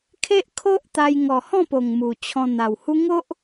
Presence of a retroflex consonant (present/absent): absent